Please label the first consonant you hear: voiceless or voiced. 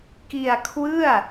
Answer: voiceless